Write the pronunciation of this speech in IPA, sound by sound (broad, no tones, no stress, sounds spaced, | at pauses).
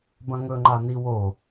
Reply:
b ɐ̃ ŋ ɵ ŋ͡ǃ a n i w o